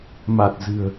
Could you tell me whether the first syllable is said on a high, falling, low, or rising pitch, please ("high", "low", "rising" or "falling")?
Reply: low